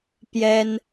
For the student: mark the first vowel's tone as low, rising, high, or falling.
high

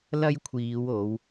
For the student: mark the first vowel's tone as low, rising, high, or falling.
high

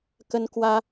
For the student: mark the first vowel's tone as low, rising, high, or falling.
high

